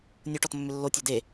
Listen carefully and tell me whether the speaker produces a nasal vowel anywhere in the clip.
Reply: no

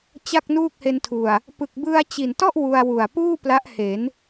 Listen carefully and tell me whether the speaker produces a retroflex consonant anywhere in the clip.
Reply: no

